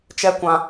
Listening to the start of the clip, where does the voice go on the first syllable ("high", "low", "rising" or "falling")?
high